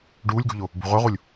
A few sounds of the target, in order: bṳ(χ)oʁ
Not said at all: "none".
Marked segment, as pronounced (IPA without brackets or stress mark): ʁ